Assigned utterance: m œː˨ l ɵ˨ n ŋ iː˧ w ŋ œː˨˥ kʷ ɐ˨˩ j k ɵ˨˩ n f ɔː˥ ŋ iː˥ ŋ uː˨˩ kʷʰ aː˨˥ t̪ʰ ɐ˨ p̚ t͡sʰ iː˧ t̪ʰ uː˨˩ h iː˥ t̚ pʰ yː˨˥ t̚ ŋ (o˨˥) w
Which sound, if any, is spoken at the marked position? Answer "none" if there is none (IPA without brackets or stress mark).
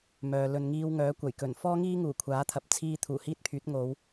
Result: o˨˧